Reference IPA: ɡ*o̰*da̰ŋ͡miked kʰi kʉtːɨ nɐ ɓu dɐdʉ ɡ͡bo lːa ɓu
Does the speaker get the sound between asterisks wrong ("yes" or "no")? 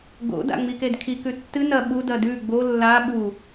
no